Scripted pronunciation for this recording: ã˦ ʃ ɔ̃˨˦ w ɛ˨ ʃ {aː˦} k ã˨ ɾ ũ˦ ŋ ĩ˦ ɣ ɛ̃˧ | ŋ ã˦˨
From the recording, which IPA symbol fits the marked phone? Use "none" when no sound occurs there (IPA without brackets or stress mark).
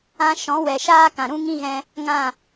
aː˦